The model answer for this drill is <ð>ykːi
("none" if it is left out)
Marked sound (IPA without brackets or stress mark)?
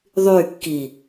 ðˤ